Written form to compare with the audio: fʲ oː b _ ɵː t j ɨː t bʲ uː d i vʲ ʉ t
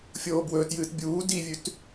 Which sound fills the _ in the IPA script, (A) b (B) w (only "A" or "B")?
B